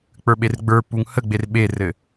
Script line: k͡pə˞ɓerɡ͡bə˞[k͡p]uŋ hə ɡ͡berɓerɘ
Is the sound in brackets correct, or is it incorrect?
incorrect